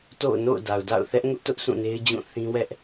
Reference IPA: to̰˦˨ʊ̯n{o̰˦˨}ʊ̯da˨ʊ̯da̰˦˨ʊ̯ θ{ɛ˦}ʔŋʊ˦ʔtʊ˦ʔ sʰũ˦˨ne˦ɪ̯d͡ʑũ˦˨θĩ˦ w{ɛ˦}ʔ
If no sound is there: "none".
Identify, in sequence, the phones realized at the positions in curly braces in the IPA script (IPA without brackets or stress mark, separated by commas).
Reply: o̰˦˨, ɛ˦, ɛ˦